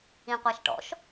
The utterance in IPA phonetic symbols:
ĩ qʷ a ʃ ʈ ɔ̰ ʃ

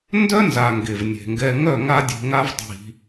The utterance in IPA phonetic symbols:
n d œ˦ n z a˨ ŋ ɡ e˨ v nʲ e̤˨ ŋ ɡ ɛ˧ ŋ œ˦˨ ŋ a˦ dʲ e̤˧ ŋ a˦ v dˤ i̤˧

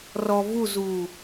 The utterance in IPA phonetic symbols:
r ɔ v u z u

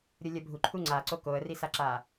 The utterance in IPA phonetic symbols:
ɾʲ o lʲ ɐ bʱ u ǃʰ uː ŋ͡ǀ aː ǀ o k oː ə̯ r i s a ǁ aː

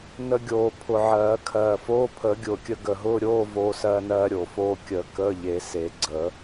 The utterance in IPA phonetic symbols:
n ə˧ ɡʲ oː˨˩ pʰ ʊ˨˩ ʕ ɜː˨˩˦ kʰ ɜː˨˩ f oː˧˥˧ pʰ əː˨˩˦ ɡʲ ʊː˨˩ kʲ ə˧ ɡ ə˨˩ ɦ ʊː˧˥˧ ɾʲ oː˧˥˧ v oː˧ s ɜː˧ n ɜː˧ ɾʲ o˨˩ f oː˧ kʲ əː˨˩˦ k əː˧˥˧ ʎ e˨˩˦ s e˨˩˦ ɡ͡ǀ əː˨˩˦

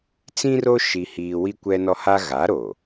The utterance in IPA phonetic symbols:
t͡s ĩ˦ r o˦ ʃ i˦ h iː˦ w i˦ kʷ ɛ˦ n ɔ˦ h a˦ ɣ a˨˦ ɾ o˨

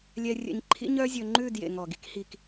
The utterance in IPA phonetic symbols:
lʲ ɛ˧ rʲ ɛ̰˧ ɲ ǃʰ ḭ˦ ɲ œ˦ zʲ ɵ˧ ŋ͡ǃ ʉ˦˨ d j ḛ˨ ŋ ɔ˨ ɡ i˧ k h i˨ k

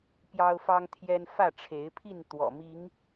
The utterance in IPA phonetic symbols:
p j ɑ˦ ʊ̯ f ɑ˦ ŋ t̪ʰ j ɛ˦ n f ä˥˨ ʈ͡ʂʰ e˨˦ ɪ̯ pʰ i˥˨ n t̪ w ɔ̰˨˩ m i˨˦ ŋ

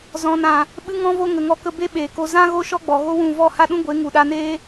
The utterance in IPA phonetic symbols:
z ɔ̃˨ n ã˨ | ɓ ɨ˧ ŋ ɔ̃˧ v o˧ ŋ ə˨ ŋ ɔ˧ k ə˧ b e˦ ɓ eː˨ k o˧ z ã˦ ɣ o˦ ʃ ɔ˦ ɡ͡b ɔ˨ ɣ o˦ w ũ˦˨ v ɔ˦˨ h a˦ ɗ ũ˦ ɡʷ e˨˦ ŋ u˨ ɗ a˧ n eː˦

